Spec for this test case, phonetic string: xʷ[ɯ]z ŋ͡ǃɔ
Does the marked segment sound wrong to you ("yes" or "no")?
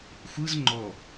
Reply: no